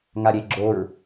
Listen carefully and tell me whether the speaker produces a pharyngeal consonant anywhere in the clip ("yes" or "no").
no